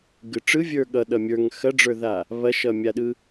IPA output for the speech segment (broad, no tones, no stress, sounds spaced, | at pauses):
ɡ ɯ ʈ͡ʂ ɯ vʲ ə˞ ɠ ʌ ɗ ʌ mʲ ə˞ ŋ x ɐ ɖ͡ʐ ə˞ ð a | β ɐ ʃ ʌ mʲ a ɗ ɯ